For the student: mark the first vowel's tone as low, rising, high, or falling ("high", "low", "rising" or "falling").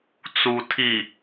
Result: low